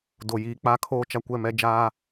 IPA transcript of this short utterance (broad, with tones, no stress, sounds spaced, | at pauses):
d o˨ j iː˨˦ k͡p a˦ kʰ oː˦ t͡ʃ a˦ kʷ ɛ˦˨ m ɛ˦ d͡ʒ aː˦